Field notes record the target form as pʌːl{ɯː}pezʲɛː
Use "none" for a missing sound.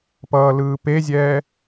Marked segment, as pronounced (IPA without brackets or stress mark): ɯː